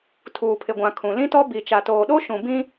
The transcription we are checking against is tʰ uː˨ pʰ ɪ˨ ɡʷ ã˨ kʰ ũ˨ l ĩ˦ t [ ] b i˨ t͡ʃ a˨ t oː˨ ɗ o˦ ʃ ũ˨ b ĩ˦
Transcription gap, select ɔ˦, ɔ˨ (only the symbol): ɔ˦